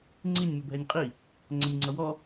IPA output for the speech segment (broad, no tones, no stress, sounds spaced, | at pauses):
ŋ͡ǀ i nʲ m ɪ bʱ ɛ nʲ qʼ i | ŋ͡ǀ ɛ nʲ ŋ͡ǀ ʌ w ɔ